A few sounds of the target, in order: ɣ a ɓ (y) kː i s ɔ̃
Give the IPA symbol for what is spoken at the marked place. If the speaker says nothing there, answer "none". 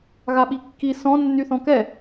i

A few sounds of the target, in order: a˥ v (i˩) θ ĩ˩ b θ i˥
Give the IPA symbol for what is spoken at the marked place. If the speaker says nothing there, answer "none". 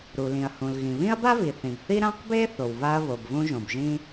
i˩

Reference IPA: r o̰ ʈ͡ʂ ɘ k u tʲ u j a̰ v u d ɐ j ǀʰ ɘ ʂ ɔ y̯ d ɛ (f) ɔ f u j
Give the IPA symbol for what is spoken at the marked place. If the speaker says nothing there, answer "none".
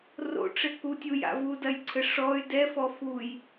f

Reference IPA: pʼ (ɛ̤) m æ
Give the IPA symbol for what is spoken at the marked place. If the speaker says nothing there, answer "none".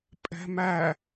ɛ̤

